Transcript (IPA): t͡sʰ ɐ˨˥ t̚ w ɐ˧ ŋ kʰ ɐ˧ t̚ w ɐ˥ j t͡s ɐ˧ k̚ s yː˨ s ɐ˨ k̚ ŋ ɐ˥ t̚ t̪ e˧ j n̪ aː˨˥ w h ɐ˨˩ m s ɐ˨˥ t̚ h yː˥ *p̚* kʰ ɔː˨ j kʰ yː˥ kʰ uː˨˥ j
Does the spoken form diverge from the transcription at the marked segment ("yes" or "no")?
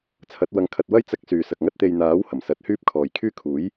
no